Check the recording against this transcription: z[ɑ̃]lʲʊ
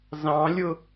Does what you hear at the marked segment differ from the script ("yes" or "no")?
no